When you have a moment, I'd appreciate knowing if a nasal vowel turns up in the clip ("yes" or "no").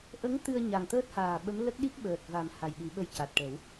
no